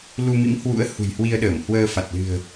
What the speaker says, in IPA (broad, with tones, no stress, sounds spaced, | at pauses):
l u˧ m ḭ˧˥ m h w ṵ˧˥ ə̯ h ṳ˨˩ j h w i˧ ə̯ ɗ əː˧˩ m h w əː˧ f a˨˩ t̚ l ɨ̤˨˩ ə̯